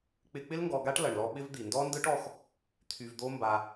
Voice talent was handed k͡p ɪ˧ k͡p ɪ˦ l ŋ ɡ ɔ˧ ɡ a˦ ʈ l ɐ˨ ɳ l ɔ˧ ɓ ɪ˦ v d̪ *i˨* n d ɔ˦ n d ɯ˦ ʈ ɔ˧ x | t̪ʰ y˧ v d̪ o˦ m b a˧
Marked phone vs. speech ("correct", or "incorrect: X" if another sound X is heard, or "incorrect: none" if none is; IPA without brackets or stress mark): correct